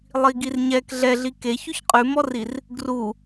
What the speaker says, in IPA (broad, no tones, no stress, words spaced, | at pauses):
lˠiɡirɲɛk ɮɛɮi ke çʉçqʼʉmɔrir | ɡru